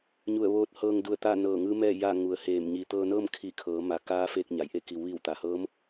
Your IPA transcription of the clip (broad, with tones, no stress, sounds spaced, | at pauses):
ɲ u˧˩ ə̯ ʋ oː˧ t̚ h ɤː˧ ŋ d u˧˩ ə̯ t̪ a˥˨ n ɤː˧˩ ŋ ɯː˧˥ m ɛː˥˨ j a˥˨ ŋ u˩˧ ə̯ h eː˧˩ m ɲ iː˩ t̪ ɤː˧ n ɤː˥˨ m kʰ i˧˩ kʰ ɤː˩˧ m a˩˧ k aː˧˥ f eː˧ k̚ ɲ a˩ j ʔ e˥˨ k i˩˧ w ʋ iː˧˩ w t̪ a˩ h ɤː˧˥ m